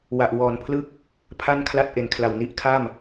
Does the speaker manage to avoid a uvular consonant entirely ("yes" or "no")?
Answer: yes